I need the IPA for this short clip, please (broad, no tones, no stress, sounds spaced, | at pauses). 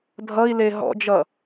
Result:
dʱ ʌ i̯ l e ɦ ɔ̰ d͡ʒ ʌ